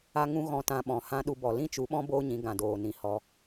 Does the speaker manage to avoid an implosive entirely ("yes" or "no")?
no